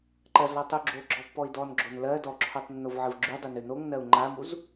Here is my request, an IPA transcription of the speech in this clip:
ǃ ɜ z l ɔ tˤ u ɡ͡ǁ o ɡ͡ǁ ɔ pː ɔ i̯ d ɔ n ɡ͡ǁ o n l ɜ d ɔ ǁʰ o tˤ nː o v ʕ ɨ v ɡ͡ǁ y dˤ ɨ n ʉ n o ŋ n ɜ u̯ ŋ͡ǃ a m u z

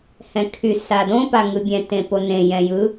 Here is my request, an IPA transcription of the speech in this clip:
h ɛ̃ kʰ y s a d õ p a ŋ ɯ bʲ ɛ̃ t ẽ p o n ẽ j ɛ̃ j ɯ

